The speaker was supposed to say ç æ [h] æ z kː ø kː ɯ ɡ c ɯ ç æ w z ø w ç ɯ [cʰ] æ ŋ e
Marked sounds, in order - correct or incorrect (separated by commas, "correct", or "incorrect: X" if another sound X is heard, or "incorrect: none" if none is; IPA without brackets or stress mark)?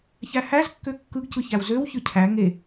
correct, correct